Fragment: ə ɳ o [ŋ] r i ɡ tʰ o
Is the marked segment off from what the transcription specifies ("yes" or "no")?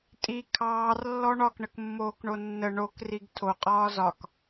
yes